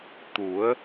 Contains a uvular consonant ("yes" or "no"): no